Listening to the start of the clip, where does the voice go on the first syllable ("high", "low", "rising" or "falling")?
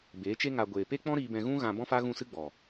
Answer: rising